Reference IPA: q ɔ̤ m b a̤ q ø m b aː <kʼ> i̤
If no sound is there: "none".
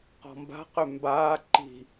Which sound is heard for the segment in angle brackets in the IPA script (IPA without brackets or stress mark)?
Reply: ǃ